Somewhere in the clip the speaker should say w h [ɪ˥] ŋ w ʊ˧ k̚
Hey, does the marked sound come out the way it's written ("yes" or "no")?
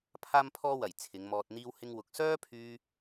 yes